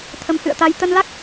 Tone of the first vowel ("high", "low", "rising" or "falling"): rising